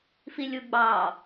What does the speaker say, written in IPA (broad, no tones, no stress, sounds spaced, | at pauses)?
f i lʲ u ɡ͡b ɑ